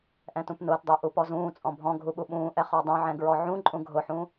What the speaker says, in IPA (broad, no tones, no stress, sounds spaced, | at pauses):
ʔ ɛ̃ t ũ p n ʊː t dˤ ʊː ʔ u p ɔ z ũː t͡sʼ ɔ̃ bʱ ɔ̃ ɡʱ u ɓ u ɓ ũː ʔ ɛ χ ɔ dˤ ũ ʕ ɛ̃ ɡ ɹ ɔ ʕ ũ ǃʼ ũ ɡʱ ʊ ħ ũ